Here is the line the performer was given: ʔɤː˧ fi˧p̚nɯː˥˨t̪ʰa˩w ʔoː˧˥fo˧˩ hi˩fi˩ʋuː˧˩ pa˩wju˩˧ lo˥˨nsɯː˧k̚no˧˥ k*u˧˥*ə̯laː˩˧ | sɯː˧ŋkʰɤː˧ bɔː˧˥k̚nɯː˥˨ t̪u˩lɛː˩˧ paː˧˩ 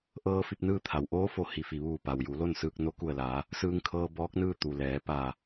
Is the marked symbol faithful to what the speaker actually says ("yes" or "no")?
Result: no